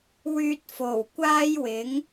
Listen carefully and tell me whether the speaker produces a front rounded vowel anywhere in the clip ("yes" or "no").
yes